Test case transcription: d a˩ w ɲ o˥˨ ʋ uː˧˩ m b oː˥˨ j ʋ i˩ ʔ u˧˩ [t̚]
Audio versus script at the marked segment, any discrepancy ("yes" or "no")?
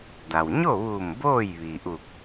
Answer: yes